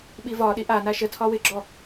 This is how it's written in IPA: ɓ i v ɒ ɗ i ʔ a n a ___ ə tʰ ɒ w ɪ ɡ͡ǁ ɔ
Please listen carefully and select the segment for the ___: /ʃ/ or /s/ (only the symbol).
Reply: ʃ